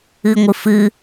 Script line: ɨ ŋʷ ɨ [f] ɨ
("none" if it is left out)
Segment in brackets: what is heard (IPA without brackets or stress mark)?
f